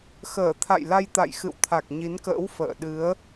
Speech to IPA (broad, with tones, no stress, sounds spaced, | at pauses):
x əː˧˩ t̪ʰ a̰˧˨ j l a˧ j t̪ a̰˧˨ j x ɨ̰˧˨ w t̪ʰ a˨˩ k̚ ɲ i˨˦ n k ə̰ː˧˥ w f ə̰ː˧˨ ɗ ɨ˨˦ ə̯